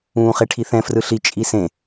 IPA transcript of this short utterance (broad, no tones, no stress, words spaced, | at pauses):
ũːχeʈʰiθɛ̃ frɯɬi t͡ʃʼisẽ